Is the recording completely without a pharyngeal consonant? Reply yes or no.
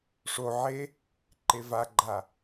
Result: no